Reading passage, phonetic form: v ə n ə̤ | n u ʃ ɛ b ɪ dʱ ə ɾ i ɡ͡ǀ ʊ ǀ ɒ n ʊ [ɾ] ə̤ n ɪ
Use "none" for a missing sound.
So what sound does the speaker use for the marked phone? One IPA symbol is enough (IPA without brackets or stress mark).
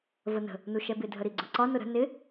ɾ